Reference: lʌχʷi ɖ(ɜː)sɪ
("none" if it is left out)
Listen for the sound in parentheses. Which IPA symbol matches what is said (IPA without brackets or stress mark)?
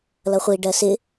ɜ